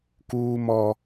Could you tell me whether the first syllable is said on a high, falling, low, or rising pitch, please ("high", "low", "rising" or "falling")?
high